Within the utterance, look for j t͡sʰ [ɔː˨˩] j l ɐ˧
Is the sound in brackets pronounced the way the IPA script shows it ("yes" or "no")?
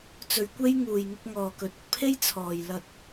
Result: no